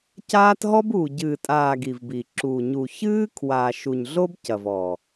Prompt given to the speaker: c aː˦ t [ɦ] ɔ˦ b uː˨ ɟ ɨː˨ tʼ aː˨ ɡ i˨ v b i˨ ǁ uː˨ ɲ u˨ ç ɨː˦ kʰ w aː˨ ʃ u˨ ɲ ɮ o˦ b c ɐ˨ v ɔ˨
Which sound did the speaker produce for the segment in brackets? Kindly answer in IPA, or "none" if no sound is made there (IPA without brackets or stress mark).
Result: ɦ